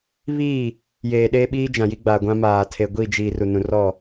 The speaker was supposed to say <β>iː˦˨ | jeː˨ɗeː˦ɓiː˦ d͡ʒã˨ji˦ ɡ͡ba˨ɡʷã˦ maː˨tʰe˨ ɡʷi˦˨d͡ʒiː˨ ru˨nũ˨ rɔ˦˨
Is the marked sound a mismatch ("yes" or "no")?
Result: no